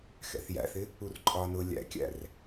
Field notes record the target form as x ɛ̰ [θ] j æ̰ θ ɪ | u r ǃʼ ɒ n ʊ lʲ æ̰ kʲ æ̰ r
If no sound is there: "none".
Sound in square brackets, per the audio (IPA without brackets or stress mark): θ